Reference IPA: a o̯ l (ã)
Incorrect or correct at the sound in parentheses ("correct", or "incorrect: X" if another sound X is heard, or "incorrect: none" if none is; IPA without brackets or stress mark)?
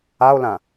correct